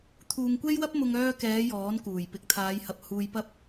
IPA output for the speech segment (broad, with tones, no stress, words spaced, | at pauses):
t̪ʰuː˧ŋkʷe˥jwɐ˥p̚mʊ˧ŋ œː˧kɛː˨˧ jɔː˨˥nkuː˨˩j pɪ˨k̚t̪ʰaː˨˧jhɐ˨p̚ huː˨jpɐ˧p̚